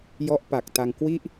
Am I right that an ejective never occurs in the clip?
yes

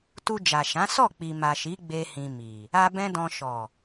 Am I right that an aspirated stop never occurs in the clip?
yes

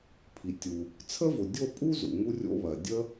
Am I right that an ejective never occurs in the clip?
no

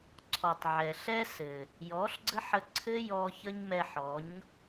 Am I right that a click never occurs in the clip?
no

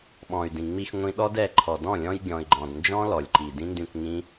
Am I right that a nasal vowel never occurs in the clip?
no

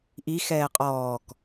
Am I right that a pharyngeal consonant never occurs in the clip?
yes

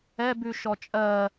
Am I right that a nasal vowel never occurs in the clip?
yes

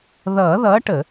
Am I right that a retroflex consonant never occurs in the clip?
no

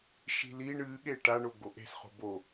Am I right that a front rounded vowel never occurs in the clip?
yes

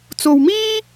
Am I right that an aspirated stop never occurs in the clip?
yes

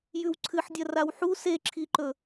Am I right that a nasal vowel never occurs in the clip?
yes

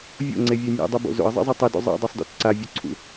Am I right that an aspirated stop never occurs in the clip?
no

